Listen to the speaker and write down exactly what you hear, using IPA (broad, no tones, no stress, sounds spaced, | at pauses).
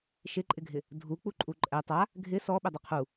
ʃ ɪ ǃʼ ɪ ɡʱ ɪ | dʱ u k͡p u ǃʼ u ǃʼ ɛ tˤ a | ɡʱ ɪ s ɔ ɓ ɪ dˤ ɪ qʰ u